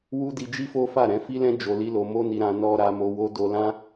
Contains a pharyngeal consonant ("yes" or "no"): no